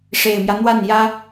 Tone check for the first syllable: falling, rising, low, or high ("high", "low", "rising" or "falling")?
low